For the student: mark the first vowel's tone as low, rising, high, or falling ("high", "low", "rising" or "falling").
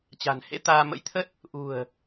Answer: low